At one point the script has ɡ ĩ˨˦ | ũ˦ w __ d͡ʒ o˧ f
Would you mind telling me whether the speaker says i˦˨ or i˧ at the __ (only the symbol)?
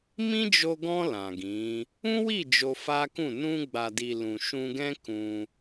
i˦˨